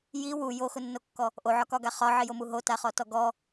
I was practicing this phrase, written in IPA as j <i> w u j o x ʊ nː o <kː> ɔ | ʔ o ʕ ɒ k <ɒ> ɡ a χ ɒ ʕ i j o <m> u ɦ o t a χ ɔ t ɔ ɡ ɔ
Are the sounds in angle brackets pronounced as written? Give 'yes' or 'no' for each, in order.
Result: yes, yes, yes, yes

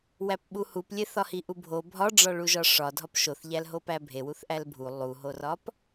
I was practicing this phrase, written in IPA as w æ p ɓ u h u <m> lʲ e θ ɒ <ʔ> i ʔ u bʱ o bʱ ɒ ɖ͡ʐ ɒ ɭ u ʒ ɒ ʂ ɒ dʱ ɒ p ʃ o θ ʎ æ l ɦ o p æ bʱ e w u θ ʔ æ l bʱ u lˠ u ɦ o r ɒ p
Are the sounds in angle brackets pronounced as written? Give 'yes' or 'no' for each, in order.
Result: no, no

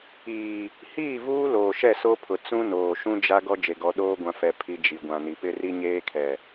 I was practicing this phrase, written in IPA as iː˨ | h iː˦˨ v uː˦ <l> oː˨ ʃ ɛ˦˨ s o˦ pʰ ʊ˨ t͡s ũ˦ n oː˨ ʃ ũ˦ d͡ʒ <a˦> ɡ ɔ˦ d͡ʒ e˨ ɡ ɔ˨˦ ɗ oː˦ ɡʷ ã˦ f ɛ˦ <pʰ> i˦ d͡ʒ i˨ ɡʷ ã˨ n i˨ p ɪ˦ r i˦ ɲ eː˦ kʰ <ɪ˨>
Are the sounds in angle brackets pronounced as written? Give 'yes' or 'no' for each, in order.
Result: yes, yes, yes, no

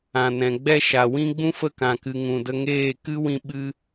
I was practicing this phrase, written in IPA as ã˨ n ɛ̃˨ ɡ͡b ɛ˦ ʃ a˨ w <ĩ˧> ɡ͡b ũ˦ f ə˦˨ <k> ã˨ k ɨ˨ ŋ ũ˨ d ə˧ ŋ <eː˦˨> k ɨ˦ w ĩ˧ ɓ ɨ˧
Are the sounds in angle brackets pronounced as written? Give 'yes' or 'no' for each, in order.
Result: no, yes, yes

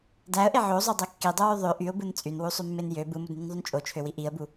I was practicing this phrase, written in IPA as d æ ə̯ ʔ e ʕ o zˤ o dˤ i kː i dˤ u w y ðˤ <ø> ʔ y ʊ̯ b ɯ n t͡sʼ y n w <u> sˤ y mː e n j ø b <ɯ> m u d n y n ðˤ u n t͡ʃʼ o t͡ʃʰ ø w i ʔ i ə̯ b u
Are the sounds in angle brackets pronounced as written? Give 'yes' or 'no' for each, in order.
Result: yes, yes, yes

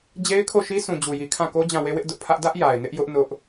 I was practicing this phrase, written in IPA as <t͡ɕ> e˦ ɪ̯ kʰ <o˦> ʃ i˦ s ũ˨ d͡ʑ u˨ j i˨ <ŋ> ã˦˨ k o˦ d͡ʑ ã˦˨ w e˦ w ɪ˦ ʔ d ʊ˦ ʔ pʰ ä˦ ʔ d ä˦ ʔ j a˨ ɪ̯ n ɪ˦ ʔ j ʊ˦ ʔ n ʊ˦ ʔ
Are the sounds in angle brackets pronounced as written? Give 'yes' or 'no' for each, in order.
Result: no, no, no

